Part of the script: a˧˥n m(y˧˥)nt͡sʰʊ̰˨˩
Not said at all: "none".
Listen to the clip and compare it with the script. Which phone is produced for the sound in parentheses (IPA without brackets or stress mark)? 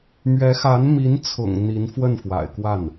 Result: i˧˥